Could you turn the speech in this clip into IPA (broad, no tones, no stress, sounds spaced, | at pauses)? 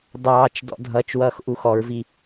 dˤ ɑː t͡ʃ d ɔ̰ dʱ ʌ t͡ʃ w ʌː x ʔ u x ɔ ɹ v i